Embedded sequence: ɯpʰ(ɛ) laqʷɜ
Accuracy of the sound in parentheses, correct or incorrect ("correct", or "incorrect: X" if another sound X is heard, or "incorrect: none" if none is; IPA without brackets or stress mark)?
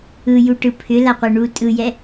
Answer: incorrect: ʏ